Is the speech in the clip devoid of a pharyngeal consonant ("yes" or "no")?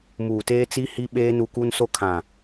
yes